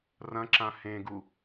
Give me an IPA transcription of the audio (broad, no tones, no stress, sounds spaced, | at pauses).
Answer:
r ɐ̃ ǁ ã h ẽ ɡ u